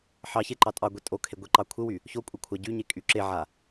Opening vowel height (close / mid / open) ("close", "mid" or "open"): open